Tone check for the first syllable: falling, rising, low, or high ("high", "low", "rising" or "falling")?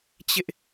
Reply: high